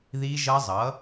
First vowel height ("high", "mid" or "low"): high